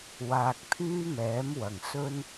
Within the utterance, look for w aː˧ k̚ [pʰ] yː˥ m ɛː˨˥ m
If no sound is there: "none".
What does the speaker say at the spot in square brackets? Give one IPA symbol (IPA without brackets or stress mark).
pʰ